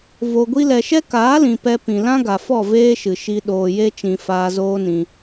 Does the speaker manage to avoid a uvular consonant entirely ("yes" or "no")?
yes